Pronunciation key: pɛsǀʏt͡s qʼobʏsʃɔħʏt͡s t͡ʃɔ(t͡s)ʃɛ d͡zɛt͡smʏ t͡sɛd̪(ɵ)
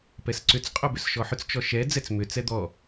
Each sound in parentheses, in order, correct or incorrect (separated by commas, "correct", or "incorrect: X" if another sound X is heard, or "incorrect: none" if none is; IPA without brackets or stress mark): incorrect: none, incorrect: ɔ